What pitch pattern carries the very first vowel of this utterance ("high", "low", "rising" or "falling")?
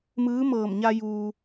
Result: rising